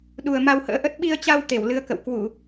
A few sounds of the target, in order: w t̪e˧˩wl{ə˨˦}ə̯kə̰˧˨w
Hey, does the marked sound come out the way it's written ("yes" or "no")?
no